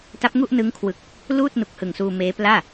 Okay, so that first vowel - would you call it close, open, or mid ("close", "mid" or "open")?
open